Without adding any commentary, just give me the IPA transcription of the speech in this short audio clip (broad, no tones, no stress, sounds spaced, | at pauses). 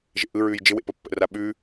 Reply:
ʒ ḛ ʔ ɯ ɹ ʉː j d͡ʒ ɪ w ḛ p ə pː ə̰ r a ɓ ʉ